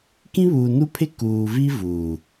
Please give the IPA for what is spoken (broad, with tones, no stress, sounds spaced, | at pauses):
k ĩ˦ β uː˨ n u˦ pʰ ɪ˦ k uː˨ v i˦ v uː˨